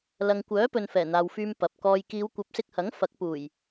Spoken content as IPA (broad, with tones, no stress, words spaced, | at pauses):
lɐ˨ŋkʷœː˨˥pɵ˨n fɛː˨˩n̪aː˨wfyː˧m pɐ˨p̚kɔː˧j kiː˨˧wkʷɐ˨˥p̚sɪ˧k̚hɐ˨˥ŋ fɐ˨˥k̚puː˨˩j